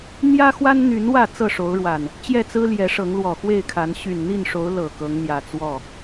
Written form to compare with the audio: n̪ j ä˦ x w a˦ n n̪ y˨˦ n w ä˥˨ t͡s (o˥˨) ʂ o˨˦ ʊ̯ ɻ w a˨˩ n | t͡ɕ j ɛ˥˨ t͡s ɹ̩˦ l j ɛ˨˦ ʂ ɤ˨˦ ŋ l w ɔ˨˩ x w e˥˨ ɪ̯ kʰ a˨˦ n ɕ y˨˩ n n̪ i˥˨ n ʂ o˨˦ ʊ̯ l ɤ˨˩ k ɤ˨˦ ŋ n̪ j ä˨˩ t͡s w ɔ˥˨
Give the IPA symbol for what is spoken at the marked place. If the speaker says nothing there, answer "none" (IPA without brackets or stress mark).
ɤ˥˨